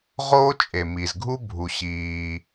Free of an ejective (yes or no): no